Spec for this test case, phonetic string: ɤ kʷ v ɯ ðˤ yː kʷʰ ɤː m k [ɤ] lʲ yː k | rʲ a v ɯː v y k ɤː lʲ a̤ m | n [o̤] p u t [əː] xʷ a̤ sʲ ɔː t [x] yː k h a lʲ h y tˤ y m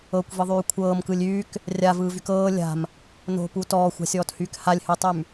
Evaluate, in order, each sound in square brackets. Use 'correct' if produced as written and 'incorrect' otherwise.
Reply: incorrect, correct, incorrect, incorrect

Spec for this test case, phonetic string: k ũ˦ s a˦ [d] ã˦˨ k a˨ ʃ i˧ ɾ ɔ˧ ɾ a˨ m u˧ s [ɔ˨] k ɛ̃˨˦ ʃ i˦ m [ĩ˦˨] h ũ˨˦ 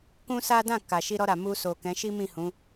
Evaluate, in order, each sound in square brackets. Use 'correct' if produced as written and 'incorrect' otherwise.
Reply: correct, incorrect, correct

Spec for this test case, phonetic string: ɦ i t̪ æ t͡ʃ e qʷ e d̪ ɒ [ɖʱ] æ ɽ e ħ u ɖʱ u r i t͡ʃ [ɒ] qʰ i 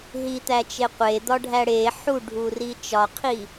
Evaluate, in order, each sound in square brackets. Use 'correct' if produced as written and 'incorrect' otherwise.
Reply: correct, correct

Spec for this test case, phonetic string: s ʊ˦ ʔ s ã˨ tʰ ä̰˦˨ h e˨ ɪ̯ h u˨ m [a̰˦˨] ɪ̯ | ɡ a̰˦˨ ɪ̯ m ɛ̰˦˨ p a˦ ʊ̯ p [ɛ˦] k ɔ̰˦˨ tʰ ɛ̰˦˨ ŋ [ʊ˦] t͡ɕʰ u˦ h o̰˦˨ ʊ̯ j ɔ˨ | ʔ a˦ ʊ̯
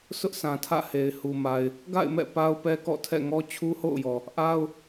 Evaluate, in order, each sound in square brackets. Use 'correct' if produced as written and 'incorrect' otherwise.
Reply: incorrect, correct, incorrect

